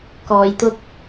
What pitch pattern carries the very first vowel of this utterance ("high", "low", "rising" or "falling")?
low